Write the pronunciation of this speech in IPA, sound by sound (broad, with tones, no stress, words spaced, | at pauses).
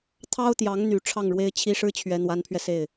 t̪ʰɑ˥ʊ̯t̪jɑ˧˥ŋn̪y˨˩ ʈ͡ʂʰɑ˥˩ŋɻwe˥ɪ̯t͡ɕʰi˥ʂɻ̩˥ t͡ɕʰɥɛ˧˥n̪wa˧˥npʰɥɛ˧se˥˩ɪ̯